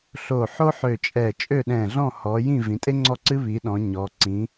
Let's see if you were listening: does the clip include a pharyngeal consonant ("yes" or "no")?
yes